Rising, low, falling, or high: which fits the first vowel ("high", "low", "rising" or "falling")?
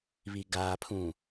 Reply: low